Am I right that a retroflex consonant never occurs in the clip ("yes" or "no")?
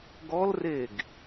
yes